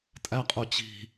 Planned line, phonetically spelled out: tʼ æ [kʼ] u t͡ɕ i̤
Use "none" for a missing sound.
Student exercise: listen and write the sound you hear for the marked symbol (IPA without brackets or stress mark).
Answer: qʼ